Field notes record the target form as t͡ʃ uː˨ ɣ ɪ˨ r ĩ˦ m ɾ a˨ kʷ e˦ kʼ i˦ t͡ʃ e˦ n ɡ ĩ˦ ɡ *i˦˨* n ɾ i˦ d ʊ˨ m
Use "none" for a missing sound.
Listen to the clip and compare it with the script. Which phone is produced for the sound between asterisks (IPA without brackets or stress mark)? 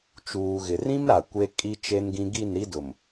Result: i˦˨